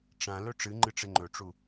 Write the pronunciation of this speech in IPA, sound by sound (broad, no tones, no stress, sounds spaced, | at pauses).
ʈ͡ʂ ã l ɵ ʈ͡ʂ ɨ ŋ͡ǃ ɨ ʈ͡ʂ e ŋ͡ǃ ɵ ʈ͡ʂ u